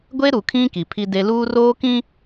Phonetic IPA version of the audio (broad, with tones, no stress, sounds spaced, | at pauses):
ɡʷ e˦ ɾ u˨ kʰ ĩ˦ k i˨ pʰ i˦ d e˦ l uː˦ r oː˦ k ĩ˦